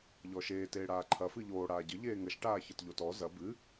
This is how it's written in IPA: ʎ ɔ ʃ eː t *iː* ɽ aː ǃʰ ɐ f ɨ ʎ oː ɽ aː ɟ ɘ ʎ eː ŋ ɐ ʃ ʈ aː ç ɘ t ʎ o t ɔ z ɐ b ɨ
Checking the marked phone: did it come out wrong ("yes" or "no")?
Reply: yes